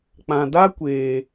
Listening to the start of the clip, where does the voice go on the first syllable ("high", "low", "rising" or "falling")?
low